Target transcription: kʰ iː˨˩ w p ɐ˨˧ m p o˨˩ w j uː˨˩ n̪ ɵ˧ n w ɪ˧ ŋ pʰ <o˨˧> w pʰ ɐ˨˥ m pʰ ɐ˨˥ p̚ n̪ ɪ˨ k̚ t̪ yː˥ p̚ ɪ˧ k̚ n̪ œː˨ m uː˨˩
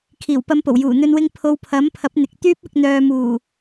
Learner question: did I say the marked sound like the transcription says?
yes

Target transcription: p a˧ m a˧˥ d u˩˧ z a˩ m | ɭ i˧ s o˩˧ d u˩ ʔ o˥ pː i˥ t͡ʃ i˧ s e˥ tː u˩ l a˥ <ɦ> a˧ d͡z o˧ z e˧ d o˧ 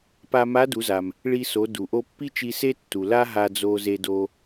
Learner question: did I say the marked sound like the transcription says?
yes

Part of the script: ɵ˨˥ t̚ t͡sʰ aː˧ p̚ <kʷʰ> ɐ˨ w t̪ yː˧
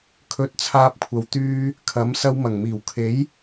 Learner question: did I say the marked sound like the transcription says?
yes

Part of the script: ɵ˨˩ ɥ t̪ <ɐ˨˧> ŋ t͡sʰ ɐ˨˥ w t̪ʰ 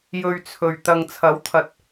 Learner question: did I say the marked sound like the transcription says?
no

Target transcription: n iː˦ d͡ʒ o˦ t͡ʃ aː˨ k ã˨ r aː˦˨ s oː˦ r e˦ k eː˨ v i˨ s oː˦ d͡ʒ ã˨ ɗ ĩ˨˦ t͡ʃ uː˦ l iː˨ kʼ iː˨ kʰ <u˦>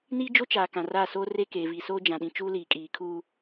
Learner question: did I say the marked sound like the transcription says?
no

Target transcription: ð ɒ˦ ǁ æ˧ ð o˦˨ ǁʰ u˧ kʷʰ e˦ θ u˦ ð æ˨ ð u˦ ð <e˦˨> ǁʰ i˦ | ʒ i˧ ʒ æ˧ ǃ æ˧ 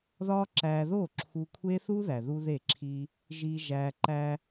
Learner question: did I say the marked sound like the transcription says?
yes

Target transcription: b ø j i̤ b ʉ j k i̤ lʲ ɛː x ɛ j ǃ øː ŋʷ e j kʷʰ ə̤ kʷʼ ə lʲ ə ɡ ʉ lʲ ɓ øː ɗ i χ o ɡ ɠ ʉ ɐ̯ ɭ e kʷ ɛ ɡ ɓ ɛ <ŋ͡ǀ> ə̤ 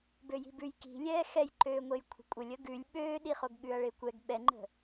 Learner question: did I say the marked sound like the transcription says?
no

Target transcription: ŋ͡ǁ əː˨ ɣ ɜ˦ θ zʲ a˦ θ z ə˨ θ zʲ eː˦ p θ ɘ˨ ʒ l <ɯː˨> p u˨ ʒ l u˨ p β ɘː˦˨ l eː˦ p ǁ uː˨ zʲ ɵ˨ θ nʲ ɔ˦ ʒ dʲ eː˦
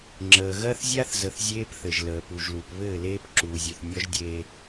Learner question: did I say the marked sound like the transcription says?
no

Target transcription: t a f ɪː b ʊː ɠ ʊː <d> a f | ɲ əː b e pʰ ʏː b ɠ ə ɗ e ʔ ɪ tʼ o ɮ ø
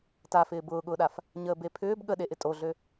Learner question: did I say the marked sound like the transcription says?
no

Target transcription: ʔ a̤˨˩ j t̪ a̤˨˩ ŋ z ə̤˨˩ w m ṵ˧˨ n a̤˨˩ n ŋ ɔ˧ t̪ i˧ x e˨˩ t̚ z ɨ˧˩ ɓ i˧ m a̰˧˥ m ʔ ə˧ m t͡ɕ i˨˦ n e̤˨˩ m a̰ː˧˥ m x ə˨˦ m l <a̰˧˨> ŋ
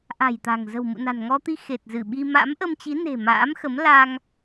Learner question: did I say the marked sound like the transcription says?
no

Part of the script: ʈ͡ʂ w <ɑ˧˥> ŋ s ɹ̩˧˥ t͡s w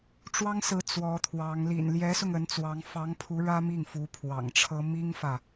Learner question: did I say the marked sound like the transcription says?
no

